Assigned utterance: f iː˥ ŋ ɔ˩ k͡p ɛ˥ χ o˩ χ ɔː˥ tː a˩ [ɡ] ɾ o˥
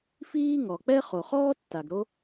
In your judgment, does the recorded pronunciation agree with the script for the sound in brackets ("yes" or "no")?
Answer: yes